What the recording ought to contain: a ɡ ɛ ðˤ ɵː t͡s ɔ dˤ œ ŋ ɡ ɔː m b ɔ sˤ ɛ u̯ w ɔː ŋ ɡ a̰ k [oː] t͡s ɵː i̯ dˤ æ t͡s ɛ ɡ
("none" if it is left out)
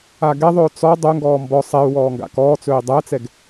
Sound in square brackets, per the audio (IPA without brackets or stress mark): ɔː